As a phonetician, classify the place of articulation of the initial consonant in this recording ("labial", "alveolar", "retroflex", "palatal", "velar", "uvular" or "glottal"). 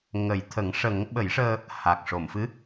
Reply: velar